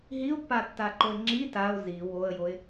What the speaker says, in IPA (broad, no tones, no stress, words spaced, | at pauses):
ɦiʊ̯pːatːaǃoɪ̯ ŋ͡ǁi taʊ̯ zi woə̯joɪ̯